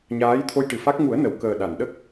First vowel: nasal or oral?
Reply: oral